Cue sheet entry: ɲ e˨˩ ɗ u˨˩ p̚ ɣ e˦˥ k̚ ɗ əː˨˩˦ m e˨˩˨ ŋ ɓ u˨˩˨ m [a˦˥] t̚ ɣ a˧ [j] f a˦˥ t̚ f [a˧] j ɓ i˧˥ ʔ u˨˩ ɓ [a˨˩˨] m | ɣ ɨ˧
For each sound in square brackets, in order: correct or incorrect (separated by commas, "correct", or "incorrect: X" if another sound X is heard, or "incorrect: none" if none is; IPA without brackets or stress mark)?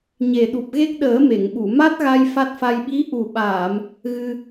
correct, correct, correct, incorrect: aː˨˩˨